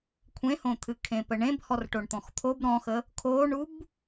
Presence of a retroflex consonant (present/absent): present